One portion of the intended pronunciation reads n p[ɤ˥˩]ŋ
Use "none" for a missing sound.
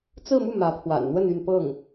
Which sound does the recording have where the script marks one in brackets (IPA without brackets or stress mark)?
ɤ˥˩